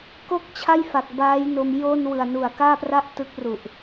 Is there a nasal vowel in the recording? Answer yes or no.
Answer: no